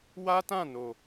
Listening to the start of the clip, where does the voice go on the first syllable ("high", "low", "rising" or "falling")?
high